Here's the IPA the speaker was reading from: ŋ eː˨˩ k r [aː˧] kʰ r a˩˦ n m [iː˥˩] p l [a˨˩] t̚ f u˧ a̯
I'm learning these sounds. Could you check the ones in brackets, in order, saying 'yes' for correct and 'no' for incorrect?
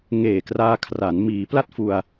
yes, no, no

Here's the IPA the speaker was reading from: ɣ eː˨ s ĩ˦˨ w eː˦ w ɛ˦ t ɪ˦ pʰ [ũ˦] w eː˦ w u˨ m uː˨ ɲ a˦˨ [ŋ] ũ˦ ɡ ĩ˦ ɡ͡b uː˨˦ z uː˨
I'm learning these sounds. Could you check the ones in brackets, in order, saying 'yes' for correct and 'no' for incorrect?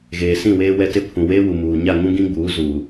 no, yes

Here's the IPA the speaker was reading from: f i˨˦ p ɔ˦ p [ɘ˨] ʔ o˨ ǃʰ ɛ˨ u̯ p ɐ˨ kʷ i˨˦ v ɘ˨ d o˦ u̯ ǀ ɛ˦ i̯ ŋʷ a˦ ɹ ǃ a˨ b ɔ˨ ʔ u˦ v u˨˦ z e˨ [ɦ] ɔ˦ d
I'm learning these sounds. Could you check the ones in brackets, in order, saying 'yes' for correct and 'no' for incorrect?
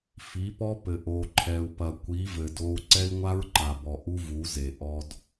yes, no

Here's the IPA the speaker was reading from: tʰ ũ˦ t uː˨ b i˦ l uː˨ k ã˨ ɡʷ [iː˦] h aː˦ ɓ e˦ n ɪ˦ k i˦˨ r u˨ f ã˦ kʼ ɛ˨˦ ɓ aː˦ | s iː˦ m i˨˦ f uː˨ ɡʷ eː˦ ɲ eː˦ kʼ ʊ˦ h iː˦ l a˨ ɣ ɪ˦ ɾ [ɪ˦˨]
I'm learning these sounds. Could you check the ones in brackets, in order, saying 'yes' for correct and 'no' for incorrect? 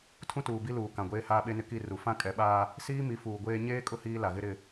no, yes

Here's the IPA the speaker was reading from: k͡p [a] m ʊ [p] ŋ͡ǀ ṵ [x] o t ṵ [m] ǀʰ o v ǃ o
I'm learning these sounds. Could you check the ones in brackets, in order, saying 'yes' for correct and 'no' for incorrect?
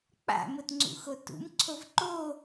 no, no, yes, yes

